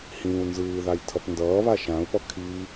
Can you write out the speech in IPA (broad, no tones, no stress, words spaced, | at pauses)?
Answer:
hĩːu̯nzɯːðaj tʰʌpndʌːβa ʃãu̯pʌ kʰi